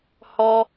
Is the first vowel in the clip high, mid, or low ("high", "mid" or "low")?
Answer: mid